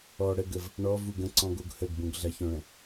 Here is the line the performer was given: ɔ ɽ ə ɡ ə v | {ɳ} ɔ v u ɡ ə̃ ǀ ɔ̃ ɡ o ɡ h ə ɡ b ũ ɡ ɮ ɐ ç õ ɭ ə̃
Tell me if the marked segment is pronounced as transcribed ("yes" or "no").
yes